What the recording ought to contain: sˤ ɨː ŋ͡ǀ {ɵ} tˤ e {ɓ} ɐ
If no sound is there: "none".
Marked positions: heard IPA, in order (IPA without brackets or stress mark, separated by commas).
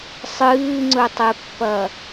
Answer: ɵ, pː